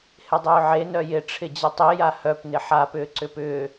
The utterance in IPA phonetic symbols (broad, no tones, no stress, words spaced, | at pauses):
hɪdˤʏːʕe nœjɪ ʈ͡ʂʰɪd͡ʑətˤi jahœp nɪħa pʏːǀʏpʏː